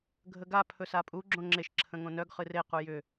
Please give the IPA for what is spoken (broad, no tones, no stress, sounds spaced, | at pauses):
ɡʱ ə ɡ a pʰ ɵ s a pʼ u ɡ͡ǁ õ ŋ͡ǁ e ʃ ǁʰ ə̃ ŋ õ n œ ɡ χ ɨ r e q u j ʏ